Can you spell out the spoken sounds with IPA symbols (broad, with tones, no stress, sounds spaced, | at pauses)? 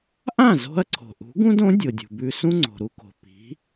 ʔ ã˥˩ z o̤˧ ɐ̯ ǀʰ o̤˩ ʔ ṳ˩˥ ɡ ũ˥ d õ˩˥ dʲ o˩ dʲ ṳ˩ b ʉ˧ s ũ˥ ŋ͡ǀ o̤˩ ɾ u˧ k o̤˩ p i̤˩˥